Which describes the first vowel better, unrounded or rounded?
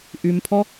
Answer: rounded